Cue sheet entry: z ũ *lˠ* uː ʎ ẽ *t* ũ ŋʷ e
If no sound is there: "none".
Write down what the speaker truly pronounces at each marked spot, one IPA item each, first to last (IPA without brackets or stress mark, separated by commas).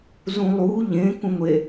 lˠ, k